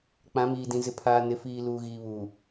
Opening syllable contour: rising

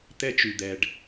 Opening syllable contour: high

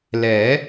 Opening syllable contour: rising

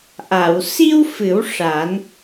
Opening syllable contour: low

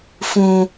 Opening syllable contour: high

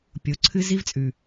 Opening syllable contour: rising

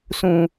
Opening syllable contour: low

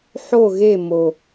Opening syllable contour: falling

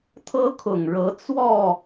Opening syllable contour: high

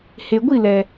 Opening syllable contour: low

